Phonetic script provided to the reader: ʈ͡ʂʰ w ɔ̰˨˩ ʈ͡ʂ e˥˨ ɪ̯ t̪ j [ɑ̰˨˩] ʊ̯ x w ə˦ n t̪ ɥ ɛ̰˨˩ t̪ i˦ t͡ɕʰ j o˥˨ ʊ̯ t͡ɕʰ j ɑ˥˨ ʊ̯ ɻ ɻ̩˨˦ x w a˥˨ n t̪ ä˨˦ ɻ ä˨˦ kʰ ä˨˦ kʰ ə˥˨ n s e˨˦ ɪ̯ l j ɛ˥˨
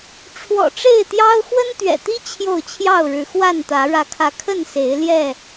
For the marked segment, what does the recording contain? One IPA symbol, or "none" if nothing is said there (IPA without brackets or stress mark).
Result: ɑ˦